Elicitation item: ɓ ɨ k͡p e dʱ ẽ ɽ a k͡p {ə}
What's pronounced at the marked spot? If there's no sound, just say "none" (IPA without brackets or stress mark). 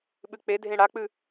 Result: ɨ